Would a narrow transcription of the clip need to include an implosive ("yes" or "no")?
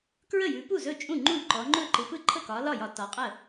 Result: no